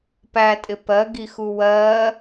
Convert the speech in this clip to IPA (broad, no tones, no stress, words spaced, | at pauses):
pætʼɪ pɜɡixu wɜ